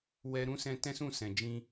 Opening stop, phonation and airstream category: plain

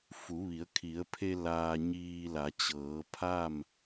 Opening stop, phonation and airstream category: aspirated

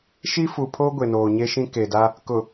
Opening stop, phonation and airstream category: aspirated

